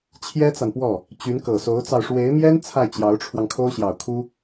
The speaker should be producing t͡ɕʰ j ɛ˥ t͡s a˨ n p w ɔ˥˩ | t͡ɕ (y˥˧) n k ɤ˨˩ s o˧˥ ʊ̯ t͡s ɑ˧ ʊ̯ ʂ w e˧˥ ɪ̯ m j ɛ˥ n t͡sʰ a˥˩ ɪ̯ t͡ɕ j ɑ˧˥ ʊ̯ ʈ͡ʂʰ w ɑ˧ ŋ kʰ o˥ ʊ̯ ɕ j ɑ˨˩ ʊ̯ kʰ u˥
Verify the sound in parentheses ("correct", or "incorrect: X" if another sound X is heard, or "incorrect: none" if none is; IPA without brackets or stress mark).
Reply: incorrect: y˧˥